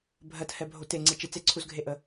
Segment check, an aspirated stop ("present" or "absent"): present